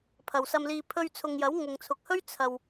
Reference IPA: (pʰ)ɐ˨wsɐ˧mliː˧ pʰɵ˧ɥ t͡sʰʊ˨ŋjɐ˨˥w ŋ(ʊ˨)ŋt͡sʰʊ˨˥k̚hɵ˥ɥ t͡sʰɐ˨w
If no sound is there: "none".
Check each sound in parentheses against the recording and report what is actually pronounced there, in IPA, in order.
pʰ, ʊ˨

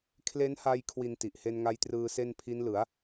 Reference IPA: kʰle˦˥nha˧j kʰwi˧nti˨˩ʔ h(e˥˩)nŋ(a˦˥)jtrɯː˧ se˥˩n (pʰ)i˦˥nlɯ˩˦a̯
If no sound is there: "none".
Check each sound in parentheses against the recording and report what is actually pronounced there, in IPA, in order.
e˧, a˦˥, pʰ

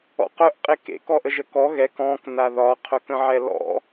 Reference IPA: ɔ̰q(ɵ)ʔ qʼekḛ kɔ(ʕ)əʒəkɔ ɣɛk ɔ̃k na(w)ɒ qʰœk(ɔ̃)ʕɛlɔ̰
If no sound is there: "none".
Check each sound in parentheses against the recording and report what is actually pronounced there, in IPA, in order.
œ, ʔ, ð, ə̃

